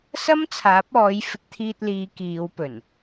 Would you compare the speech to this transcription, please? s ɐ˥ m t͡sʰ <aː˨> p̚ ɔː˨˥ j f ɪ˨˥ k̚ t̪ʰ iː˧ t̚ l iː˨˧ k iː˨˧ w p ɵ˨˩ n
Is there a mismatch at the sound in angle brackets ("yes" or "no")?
yes